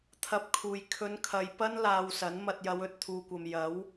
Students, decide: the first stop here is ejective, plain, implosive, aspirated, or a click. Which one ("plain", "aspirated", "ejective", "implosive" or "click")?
aspirated